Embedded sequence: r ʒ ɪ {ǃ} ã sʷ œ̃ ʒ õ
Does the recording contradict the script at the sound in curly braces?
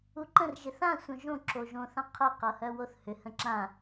yes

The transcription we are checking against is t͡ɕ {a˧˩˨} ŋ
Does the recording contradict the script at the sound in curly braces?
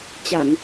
no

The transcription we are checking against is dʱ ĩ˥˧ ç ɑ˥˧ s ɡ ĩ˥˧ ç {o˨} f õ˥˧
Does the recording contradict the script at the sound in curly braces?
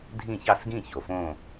no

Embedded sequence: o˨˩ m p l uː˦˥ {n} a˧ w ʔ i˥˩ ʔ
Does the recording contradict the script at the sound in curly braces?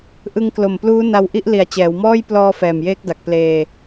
no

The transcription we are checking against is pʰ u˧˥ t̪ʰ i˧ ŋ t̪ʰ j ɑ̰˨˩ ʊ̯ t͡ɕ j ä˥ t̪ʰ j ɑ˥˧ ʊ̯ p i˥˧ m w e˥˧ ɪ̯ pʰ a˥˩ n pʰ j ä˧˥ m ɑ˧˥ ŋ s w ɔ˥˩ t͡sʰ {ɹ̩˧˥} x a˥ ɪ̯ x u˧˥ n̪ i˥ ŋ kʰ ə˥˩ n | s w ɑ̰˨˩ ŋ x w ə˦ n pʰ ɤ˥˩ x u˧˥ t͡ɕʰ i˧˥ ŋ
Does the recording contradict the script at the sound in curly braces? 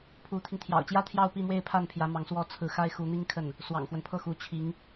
no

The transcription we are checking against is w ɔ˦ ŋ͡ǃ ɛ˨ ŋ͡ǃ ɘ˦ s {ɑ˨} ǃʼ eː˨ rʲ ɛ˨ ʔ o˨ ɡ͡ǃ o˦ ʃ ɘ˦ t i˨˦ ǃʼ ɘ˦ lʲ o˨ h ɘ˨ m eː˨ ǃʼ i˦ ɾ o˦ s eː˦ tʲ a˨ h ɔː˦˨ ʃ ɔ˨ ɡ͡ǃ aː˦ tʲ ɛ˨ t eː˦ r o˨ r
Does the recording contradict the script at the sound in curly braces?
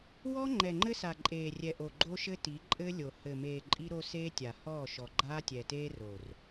yes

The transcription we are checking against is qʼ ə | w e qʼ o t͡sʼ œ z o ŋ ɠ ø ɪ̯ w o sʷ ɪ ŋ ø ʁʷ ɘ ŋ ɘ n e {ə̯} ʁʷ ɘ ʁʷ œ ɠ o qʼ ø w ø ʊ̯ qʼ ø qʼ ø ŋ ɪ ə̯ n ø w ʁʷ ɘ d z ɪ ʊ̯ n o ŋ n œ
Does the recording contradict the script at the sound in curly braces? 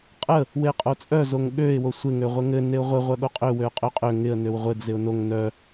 yes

